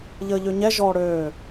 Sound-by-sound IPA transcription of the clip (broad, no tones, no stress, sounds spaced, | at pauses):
ʎ əː ʎ ø ɲ ɛ ʒ ɔː ɽ øː